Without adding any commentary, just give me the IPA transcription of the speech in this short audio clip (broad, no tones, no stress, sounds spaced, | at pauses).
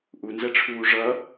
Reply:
ʔ u n z ɛ ʈ͡ʂʰ uː ʐ ʌ